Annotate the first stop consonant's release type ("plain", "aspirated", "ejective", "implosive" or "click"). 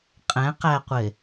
ejective